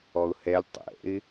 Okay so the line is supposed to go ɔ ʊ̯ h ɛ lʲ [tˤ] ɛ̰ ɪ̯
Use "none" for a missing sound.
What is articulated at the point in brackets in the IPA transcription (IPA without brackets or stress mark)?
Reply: tˤ